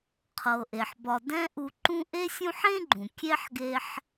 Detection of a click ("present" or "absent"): present